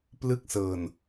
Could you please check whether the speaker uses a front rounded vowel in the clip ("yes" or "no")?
no